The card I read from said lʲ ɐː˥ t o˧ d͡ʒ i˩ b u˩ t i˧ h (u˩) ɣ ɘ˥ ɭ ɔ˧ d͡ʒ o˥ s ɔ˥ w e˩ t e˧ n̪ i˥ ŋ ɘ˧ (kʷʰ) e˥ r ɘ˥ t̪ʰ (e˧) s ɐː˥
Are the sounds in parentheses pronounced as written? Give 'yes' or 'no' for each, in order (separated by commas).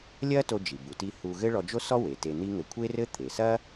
no, yes, no